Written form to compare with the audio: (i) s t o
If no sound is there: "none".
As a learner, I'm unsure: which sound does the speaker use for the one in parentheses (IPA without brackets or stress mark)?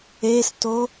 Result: e